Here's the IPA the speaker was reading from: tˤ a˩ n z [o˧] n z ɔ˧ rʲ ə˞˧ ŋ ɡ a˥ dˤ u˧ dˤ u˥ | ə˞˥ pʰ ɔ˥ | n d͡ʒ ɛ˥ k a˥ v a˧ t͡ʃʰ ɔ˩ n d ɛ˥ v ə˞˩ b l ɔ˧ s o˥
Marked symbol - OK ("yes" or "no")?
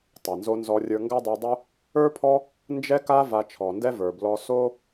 yes